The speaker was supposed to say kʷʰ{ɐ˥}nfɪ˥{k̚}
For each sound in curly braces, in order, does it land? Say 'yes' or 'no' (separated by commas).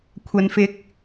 yes, yes